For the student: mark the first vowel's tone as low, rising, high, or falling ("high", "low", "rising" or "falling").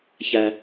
low